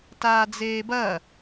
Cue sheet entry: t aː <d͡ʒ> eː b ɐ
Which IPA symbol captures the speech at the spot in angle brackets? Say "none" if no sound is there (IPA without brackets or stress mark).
d͡z